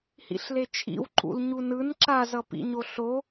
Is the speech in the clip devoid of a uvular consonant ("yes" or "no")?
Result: yes